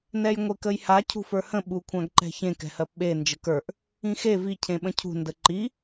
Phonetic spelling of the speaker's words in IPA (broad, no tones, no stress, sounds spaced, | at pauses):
n ɛ j ŋʷ e k ə j h a cʰ ṳ f ə˞ h ə̃ ɓ u kʷʰ ã ɡ ǃ ɛ̤ ç ẽ k ɛ̤ h ɜ p ɓ e n d͡ʒ ə k ə˞ ʔ | ĩ x e v i cʰ ẽ ɓ ə̃ cʰ ṳ n d ə ǃ i